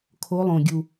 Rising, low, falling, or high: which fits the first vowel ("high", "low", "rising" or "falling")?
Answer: rising